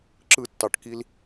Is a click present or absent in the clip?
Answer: present